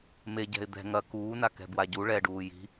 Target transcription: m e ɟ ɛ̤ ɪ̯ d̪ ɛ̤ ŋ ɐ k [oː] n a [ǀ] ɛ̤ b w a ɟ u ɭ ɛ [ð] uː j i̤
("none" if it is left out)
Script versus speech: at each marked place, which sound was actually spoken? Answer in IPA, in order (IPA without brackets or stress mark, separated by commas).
uː, k, ɖ